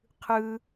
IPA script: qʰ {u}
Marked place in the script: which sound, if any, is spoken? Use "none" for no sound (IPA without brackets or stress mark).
ɯ